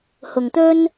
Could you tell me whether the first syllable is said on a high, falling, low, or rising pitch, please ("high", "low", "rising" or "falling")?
low